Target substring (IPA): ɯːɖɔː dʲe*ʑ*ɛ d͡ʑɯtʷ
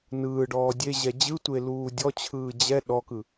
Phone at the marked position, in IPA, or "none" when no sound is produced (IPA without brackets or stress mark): ʑ